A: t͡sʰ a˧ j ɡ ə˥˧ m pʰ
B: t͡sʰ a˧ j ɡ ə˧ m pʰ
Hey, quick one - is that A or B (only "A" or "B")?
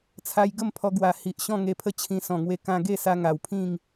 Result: A